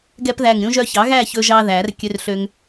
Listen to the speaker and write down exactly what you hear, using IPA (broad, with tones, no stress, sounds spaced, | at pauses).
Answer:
ɡ ɛ˦ p ð æ˧˩ ŋ ɾʲ ũ˦ ʒ œ˦ ç ɑ˩˥ ɣ æ˥˨ ç ɵ˦ ʒ ɑ˦ ð æ˨˩˦ r kʲ ø˦ r ɬ ø˦ ŋ